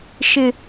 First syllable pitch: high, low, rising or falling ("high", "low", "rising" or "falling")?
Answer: high